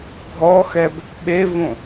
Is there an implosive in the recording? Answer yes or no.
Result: yes